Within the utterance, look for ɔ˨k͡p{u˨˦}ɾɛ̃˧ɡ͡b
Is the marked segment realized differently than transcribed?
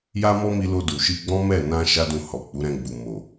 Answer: no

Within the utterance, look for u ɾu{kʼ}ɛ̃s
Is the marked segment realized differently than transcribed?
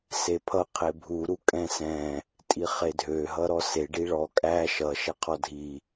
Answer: no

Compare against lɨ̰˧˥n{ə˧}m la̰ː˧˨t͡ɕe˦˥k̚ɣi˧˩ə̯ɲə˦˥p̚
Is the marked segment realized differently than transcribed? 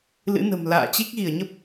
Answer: yes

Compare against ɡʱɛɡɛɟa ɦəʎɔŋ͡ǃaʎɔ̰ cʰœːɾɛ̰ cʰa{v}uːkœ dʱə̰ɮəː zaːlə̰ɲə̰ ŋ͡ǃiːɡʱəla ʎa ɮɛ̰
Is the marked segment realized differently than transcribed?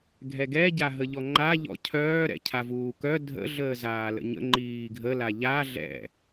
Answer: no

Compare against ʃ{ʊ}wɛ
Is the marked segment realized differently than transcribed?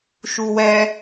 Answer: yes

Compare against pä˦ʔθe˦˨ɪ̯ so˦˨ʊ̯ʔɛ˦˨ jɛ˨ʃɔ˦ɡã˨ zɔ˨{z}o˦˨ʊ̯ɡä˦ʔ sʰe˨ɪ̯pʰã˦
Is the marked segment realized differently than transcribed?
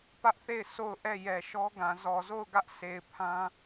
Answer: no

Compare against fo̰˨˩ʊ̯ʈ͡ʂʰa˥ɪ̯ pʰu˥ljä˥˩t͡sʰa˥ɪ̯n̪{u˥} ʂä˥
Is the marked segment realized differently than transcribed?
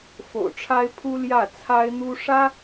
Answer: no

